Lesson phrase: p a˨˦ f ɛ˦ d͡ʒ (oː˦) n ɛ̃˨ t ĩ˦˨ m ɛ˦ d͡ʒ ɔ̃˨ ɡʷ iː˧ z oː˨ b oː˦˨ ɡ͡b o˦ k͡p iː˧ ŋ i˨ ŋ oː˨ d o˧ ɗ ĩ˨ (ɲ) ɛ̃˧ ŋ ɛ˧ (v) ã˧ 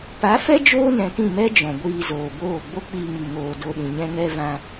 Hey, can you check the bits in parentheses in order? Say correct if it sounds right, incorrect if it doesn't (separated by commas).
correct, correct, correct